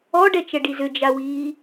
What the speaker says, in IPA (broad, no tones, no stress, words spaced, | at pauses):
ɔɖɛt͡ʃɛɖi zʏd͡ʒawiː